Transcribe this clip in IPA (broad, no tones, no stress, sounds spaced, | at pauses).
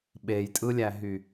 ɓ e j tʼ ɯ lʲ æ ɦ y